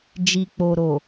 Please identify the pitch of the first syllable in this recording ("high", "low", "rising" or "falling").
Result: low